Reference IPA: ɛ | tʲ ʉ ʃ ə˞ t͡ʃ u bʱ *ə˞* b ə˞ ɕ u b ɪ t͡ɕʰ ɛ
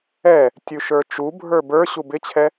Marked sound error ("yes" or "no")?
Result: no